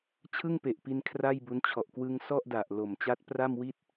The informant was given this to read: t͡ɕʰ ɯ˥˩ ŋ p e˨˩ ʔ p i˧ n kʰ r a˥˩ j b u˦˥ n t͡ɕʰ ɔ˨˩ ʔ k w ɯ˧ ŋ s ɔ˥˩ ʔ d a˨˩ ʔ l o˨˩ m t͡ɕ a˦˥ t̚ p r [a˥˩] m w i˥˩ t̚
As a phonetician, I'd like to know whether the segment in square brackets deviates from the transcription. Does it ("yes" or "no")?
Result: no